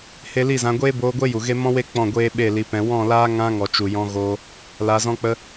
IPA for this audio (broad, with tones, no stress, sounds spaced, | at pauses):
h e˧ l i˦˨ z ã˧ ɡʷ eː˦ b oː˧ ɡʷ e˦ j u˨ ɣ e˦ m ɔ̃˦ w e˦ k͡p ɔ̃˦˨ ɡʷ eː˦ ɓ e˦˨ l i˧ p ɛ̃˧ w ɔ̃˦˨ l aː˦ ŋ ã˦ ŋ ɔ˨ t͡ʃ u˨ j ɔ̃˧ ɣ oː˦ | l a˧ z ɔ̃˦ k͡p ə˦